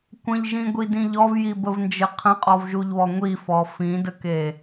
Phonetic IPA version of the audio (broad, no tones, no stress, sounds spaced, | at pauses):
kʷ ə̃ ʎ ʒ ĩ ɡʷ i d ĩ ʎ ɔ v j i b ə v n d͡ʒ ɘ qʰ ə̃ qʼ ɔ v ʒ u ʎ β ɔ ŋʷ i f ɔ f ĩ d ə k e